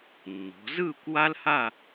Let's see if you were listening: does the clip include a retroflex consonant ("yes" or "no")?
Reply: no